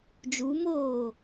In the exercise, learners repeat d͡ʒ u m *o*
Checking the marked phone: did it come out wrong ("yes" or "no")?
yes